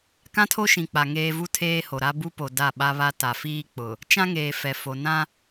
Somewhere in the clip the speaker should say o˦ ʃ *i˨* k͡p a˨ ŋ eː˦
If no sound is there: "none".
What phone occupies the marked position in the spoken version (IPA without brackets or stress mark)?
ĩ˨